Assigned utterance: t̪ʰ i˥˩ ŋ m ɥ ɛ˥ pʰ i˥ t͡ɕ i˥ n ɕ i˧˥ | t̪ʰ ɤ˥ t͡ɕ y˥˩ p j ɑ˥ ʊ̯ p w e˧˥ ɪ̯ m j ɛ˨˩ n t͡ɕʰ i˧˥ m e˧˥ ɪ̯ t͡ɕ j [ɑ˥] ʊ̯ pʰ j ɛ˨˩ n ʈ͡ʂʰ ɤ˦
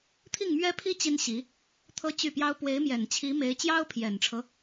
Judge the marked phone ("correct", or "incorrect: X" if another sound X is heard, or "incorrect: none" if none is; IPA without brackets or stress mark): correct